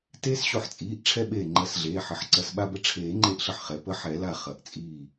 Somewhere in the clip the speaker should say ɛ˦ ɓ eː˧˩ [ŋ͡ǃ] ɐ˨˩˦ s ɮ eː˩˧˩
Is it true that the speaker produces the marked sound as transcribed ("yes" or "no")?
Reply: yes